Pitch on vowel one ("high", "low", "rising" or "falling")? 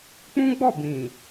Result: high